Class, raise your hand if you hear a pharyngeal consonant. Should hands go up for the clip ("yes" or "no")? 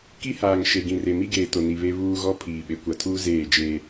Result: no